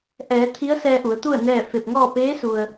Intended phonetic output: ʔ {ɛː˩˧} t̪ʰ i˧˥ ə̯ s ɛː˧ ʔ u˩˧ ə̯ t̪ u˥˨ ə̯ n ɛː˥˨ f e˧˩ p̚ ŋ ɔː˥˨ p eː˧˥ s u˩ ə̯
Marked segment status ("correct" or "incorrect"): correct